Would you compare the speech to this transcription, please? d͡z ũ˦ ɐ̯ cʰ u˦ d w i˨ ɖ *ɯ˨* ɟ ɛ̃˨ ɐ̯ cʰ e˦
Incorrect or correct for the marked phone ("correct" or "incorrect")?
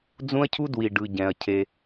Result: correct